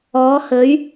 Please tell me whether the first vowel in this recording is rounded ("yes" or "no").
yes